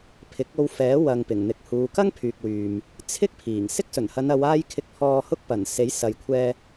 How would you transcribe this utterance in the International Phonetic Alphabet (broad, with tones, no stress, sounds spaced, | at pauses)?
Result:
pʰ ɪ˨˥ k̚ o˧ w f ɛː˨˥ w ɐ˨ ŋ p ɪ˨˩ ŋ n̪ ɪ˨˥ k̚ h uː˨˧ k ɐ˥ ŋ pʰ yː˨ k̚ w yː˨ m | t͡sʰ ɪ˥ k̚ pʰ iː˨˩ ŋ s ɪ˥ k̚ s ɵ˨˩ n h ɐ˨˧ n ɐ˨˧ w aː˥ j kʰ ɪ˧ k̚ pʰ ɔː˧ h ʊ˥ k̚ p ɐ˨˩ n s e˨˥ j s ɐ˨ j kʷʰ ɛː˧